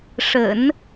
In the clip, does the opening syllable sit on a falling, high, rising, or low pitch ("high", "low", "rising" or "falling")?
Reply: low